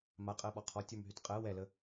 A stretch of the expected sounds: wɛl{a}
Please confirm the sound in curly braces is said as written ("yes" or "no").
no